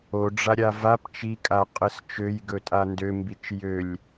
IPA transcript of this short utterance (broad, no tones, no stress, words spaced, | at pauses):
oɖ͡ʐaɾʲa vap t͡ʃikʼaqʼəs t͡ʃøjɡɵtʼa ndømbit͡ʃ jølʲ